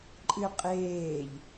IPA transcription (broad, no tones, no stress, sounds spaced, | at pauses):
ǃʼ ɨ qʼ eː ʎ